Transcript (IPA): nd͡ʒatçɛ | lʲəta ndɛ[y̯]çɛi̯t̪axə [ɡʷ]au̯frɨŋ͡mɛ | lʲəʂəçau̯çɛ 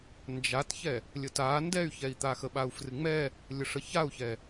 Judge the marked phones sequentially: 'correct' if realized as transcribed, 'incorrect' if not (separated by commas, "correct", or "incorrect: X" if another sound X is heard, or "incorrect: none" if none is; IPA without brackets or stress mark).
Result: correct, incorrect: ɓ